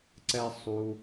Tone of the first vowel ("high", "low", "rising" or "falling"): low